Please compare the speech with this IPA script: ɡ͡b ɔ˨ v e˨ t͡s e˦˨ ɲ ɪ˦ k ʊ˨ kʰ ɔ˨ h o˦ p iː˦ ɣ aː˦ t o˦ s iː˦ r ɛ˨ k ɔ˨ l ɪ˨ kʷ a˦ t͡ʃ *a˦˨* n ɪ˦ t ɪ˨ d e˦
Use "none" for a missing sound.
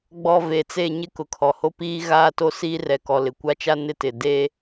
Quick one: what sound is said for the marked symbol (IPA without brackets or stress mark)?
a˦